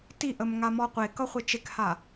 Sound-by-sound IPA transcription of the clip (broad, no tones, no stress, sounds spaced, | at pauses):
t i ʔ ə m ŋ a m ɔ qʷ e k ʌ χʷ e t͡ʃ e k h a